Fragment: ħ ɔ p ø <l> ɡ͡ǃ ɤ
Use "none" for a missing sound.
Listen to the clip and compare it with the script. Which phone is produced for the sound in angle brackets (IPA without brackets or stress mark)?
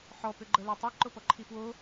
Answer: none